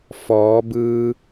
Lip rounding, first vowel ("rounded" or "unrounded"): rounded